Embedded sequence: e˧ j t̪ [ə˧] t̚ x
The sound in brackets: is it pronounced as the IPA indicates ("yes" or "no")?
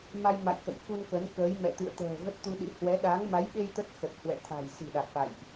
no